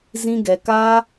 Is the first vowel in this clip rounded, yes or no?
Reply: no